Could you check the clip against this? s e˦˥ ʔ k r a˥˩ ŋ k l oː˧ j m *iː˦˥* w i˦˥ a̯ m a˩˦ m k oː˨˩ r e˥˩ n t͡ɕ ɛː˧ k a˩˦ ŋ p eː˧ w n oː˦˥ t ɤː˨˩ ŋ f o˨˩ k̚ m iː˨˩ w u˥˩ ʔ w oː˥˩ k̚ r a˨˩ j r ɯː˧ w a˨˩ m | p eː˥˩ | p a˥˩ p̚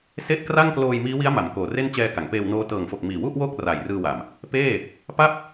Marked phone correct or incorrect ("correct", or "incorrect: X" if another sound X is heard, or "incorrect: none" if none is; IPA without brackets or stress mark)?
correct